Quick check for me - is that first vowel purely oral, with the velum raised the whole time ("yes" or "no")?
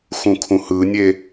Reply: no